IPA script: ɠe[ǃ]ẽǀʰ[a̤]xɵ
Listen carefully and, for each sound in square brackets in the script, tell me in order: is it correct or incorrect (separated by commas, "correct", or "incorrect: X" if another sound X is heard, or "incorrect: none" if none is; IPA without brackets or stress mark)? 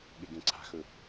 incorrect: ɡ, correct